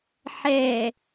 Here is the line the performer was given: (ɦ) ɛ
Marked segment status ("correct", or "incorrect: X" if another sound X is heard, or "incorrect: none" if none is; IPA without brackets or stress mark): incorrect: ħ